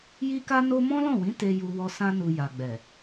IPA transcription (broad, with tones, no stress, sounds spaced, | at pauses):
j i˦ k a˦ n o˦ m ɔ̃˦ l ɔ̃˦˨ w ĩ˨˦ t e˧ j u˧ w ɔ˧ s ã˧ n u˨ j a˨ ɡ͡b ɛ˨